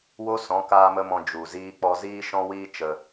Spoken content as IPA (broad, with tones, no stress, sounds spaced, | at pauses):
w o˦ s ɔ̃˨˦ k aː˦ m ə˦ m ɔ̃˧ d͡ʒ u˨ z iː˦ k͡p ɔ˦ z iː˦ ʃ ɔ̃˦ w iː˦ t͡ʃ ə˧